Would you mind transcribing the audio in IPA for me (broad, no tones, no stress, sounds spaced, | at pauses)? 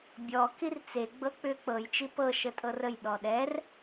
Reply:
bʲ ɔ k i r t͡s e ɡ͡b ɤ k͡p ʏ k͡p ɤ j t͡ʃ i p ɤ ʃ ə tʼ ɤ r ə j ɗ ɔ ɗ ɛ r